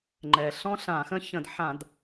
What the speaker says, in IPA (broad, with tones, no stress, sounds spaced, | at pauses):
ŋ͡ǃ ɛ˩ ɬ ɔ̃˥ ɬ ã˧˩˧ x ə̃˥ ç ə̃˧˩˧ d ħ ã˧˩˧ d